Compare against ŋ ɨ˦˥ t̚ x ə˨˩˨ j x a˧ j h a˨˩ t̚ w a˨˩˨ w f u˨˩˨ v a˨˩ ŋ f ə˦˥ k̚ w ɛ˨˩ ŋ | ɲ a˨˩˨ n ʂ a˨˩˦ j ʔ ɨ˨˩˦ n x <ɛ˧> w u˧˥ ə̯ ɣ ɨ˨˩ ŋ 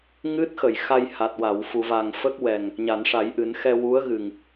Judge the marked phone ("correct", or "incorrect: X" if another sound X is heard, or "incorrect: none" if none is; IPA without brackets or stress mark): correct